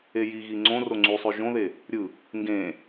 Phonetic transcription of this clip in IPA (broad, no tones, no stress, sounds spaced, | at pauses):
e j i ɣ i ŋ͡ǀ õ r o ŋ͡ǀ y sˤ ø ʒ õ ð e | ɾʲ ɯ | ŋ ɡ ẽ